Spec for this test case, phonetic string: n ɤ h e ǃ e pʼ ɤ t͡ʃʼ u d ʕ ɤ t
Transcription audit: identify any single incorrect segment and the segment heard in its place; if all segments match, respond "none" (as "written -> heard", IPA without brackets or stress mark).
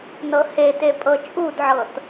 ǃ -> t